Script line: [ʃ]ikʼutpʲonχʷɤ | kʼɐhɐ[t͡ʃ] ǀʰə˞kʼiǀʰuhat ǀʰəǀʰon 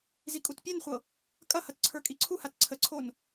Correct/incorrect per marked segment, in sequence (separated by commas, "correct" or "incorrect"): incorrect, incorrect